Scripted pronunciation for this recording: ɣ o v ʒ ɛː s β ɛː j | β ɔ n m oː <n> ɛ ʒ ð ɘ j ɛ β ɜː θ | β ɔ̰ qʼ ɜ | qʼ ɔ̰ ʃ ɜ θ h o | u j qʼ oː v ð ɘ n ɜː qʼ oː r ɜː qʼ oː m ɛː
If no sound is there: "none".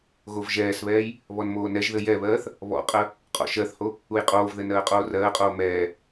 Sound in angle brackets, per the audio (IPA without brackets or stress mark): n